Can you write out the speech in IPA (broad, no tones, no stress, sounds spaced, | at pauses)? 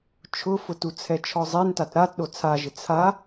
t͡ʃʰ ʊ f ʊ t u t͡sʰ ɛ t͡ʃʰ ɔ zˤ e n t a t ɾ a t ɗ o t͡sʰ a ʒ ɪ t͡sʰ a